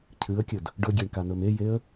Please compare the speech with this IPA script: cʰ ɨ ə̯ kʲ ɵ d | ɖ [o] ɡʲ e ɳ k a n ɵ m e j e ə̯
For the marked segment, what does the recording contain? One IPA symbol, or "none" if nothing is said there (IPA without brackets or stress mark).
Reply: ɵ